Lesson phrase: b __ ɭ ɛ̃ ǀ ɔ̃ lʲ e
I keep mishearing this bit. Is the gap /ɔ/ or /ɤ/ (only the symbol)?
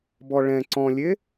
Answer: ɔ